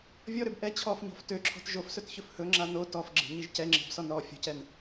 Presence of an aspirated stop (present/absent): present